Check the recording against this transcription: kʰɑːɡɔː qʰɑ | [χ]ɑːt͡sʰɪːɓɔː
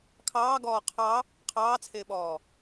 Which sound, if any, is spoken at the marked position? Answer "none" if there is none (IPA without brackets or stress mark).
qʰ